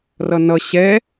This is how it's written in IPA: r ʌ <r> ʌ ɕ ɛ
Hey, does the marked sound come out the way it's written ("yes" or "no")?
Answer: no